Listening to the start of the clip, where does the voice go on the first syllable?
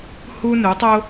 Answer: high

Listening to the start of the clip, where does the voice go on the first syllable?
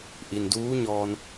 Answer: low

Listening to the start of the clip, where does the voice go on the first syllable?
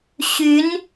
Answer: rising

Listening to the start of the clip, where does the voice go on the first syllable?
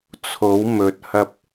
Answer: rising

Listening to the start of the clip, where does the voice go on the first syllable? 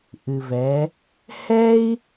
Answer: low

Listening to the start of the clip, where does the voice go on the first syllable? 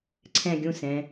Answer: high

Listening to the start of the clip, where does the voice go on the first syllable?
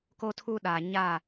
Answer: high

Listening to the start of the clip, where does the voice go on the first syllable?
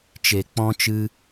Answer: low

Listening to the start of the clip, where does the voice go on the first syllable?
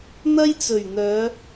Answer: high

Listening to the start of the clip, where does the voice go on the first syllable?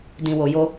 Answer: low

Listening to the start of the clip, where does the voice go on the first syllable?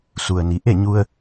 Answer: low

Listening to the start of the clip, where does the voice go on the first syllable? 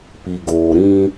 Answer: low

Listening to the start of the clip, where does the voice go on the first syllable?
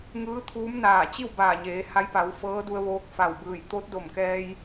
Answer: rising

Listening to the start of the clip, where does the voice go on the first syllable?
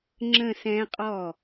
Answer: falling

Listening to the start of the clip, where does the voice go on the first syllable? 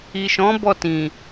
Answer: low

